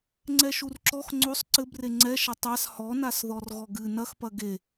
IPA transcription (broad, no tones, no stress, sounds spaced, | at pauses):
ŋ͡ǀ ɛ ʃ u r ǁ ɔ x ŋ͡ǀ o sˤ ǀ ɘ b r e ŋ͡ǀ ɛ ʃ ɐ tˤ a s h ɔ n a s ð ɔ r ɣ ɔ ɡ ɨ n ɐ x p ɐ ɡ e